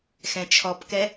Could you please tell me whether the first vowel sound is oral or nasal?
nasal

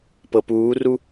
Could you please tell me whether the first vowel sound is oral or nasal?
oral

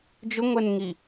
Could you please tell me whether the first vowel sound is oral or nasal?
oral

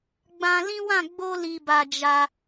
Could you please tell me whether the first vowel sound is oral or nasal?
nasal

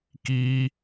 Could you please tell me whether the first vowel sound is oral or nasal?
oral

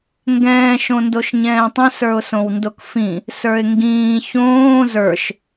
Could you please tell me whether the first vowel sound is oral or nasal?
nasal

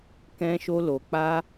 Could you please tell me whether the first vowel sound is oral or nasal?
nasal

